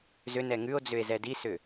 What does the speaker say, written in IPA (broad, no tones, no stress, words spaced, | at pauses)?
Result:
zʏ nɛŋʉo̯d͡zʏe̯ zɛdisʏ